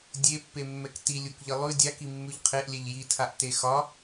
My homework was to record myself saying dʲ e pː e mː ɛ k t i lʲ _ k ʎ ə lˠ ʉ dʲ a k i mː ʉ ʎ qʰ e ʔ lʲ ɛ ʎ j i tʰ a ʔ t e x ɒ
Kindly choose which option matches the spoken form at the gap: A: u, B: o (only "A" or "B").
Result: A